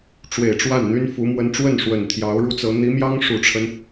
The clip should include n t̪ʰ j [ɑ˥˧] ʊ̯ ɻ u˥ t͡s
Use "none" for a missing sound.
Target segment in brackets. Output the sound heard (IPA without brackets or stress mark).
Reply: ɑ˧˥